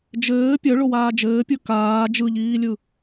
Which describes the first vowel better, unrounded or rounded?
unrounded